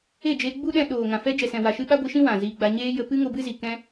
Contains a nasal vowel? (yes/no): yes